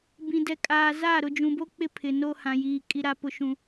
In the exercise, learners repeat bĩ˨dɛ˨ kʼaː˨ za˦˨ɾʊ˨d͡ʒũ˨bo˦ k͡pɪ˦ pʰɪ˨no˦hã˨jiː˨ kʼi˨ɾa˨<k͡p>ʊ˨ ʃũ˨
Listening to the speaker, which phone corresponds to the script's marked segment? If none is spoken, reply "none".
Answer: p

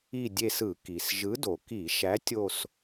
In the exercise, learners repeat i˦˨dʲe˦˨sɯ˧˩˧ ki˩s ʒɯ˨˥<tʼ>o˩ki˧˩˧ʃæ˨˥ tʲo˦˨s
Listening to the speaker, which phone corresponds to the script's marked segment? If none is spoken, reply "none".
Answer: d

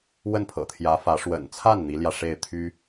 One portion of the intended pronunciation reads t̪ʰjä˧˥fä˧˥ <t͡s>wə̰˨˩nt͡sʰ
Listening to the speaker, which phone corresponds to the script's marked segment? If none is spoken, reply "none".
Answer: ʂ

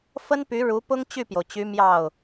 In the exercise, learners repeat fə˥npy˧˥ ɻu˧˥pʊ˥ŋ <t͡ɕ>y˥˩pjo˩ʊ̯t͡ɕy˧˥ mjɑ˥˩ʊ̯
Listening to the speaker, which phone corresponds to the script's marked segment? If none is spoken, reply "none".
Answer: t͡ɕ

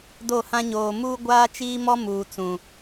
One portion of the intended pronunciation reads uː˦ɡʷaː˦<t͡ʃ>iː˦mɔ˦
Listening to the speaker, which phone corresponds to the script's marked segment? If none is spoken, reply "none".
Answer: t͡ʃ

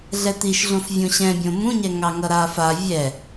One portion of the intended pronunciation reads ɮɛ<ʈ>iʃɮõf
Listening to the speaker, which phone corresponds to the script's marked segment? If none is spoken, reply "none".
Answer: t̪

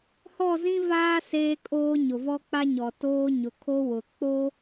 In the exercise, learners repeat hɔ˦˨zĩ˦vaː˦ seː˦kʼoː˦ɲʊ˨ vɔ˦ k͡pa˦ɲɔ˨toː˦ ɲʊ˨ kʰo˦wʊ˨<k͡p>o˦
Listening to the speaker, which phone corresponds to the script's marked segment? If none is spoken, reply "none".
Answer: k͡p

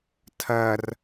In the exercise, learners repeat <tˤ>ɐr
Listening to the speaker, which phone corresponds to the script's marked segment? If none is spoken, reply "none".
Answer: tʰ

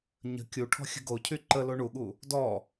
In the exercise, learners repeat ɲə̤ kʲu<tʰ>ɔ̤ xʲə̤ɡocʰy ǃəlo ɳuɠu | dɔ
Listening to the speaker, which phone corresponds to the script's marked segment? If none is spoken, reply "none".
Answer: ʈʰ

